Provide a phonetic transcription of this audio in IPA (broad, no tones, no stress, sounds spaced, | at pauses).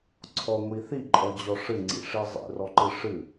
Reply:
ǀʰ ɔ ŋʷ i θ i ǃʼ ɔ d͡ʑ ɔ ʂ ɨ ŋ͡ǀ ḭ ʂ i zˤ ḭ r ɔ ǃ ɨ ʂ ɨ